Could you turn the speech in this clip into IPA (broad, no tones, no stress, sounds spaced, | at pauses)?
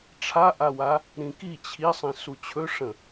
ʈ͡ʂʰ a ʔ a w a | ɾ ĩ k i t͡ɕʰ i sˤ ĩ s u t͡ɕʰ ɵ ʂ ə̃